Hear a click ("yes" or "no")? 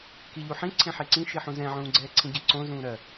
yes